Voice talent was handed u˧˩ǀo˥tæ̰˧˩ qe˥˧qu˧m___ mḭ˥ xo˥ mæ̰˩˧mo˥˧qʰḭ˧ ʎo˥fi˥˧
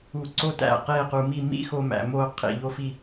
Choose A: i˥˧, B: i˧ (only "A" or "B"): A